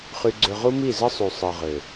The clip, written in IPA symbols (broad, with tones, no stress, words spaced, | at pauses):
χy˧ɡ͡ǀø˧ ʁu˦mi˦˨zɯ˦sˤy˨ sˤɯ˨ʁø˨